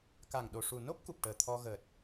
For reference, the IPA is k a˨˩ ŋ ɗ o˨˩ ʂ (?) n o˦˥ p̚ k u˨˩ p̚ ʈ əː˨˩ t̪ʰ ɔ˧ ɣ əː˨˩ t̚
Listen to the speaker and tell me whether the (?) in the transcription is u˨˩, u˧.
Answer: u˨˩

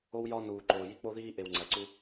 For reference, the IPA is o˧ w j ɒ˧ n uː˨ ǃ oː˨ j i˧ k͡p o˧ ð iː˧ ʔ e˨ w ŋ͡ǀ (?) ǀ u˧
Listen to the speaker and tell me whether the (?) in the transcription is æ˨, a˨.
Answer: æ˨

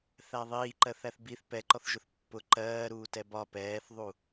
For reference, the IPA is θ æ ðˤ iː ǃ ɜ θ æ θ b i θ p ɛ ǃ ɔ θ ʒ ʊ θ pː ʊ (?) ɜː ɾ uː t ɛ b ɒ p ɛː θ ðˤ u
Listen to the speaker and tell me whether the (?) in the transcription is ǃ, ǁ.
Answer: ǃ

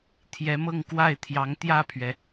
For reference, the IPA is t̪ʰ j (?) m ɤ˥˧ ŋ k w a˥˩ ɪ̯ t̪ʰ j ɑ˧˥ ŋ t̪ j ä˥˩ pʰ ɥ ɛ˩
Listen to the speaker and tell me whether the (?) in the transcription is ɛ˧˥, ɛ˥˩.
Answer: ɛ˧˥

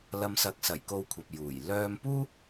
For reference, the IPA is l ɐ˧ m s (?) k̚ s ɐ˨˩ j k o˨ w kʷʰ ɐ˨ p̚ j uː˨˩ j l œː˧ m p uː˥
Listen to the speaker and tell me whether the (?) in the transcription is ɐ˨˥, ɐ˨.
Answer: ɐ˨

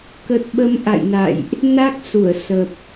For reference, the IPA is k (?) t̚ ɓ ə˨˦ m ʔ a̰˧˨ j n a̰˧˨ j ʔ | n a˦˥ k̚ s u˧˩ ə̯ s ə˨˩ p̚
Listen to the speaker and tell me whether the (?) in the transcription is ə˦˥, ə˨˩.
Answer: ə˨˩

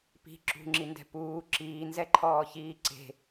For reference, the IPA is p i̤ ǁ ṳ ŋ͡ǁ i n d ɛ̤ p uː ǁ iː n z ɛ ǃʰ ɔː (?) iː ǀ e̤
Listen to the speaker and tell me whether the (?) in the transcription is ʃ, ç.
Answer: ç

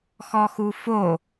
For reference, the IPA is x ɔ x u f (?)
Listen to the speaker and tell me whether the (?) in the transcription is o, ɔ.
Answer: o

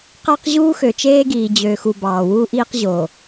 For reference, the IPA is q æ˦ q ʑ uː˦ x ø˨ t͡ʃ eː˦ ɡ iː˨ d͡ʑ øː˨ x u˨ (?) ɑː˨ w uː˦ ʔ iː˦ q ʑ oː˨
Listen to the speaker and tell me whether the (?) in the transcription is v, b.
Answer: b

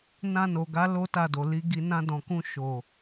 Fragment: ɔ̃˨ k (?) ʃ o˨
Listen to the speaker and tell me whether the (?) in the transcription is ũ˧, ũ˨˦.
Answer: ũ˧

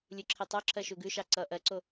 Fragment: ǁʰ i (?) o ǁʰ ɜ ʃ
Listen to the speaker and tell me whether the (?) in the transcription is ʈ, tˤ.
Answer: tˤ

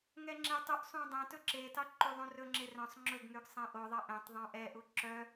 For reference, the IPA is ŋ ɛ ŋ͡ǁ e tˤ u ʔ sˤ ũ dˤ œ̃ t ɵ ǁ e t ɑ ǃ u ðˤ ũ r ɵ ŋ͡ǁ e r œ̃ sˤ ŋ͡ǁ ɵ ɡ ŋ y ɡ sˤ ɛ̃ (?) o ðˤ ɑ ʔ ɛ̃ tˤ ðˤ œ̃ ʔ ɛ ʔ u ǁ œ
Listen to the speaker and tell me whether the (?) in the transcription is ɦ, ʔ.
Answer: ʔ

